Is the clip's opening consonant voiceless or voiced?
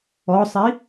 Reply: voiceless